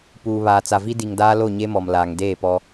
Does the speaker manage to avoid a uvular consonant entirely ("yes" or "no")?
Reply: yes